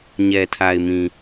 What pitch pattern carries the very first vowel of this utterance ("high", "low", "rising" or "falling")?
low